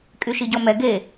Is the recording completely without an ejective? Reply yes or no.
no